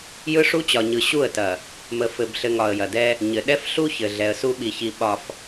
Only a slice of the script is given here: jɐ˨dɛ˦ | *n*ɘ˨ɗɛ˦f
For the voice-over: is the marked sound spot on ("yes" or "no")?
no